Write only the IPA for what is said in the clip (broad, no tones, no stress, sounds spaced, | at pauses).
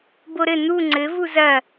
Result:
b o ɾ ɘ n̪ u ŋ͡ǀ ɘ v u z ɐ